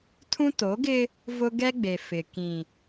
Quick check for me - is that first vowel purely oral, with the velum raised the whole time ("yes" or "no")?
no